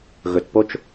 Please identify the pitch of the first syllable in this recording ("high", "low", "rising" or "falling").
low